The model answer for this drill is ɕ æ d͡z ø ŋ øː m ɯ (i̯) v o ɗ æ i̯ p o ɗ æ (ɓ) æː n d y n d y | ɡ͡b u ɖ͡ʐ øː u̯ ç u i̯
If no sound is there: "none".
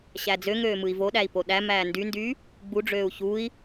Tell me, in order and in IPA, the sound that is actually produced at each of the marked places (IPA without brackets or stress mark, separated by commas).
i̯, m